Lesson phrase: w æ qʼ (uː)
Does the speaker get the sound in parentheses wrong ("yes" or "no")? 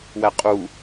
yes